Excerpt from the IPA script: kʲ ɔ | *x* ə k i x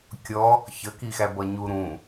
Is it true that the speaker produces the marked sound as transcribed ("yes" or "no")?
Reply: no